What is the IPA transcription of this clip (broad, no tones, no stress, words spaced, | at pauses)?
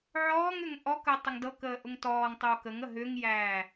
ʕɔːŋʏŋ ʔɔkəː tˤəŋdɤkəː ʔʊŋtɔːŋtˤoː kəŋə ɦʏŋjæː